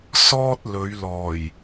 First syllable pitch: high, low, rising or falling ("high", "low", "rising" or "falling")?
high